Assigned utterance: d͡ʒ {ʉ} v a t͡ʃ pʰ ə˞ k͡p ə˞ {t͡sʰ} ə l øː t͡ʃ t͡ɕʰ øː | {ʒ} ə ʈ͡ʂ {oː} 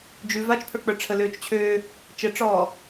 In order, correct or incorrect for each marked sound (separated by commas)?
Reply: correct, incorrect, incorrect, incorrect